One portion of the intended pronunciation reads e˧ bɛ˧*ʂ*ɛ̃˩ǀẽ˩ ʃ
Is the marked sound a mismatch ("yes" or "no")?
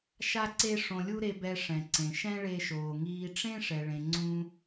no